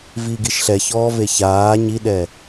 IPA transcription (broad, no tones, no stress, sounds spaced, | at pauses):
v i ɡ i ʃ ɬ ɛ ç ɔː v e ç aː ɲ i ɗ ɛ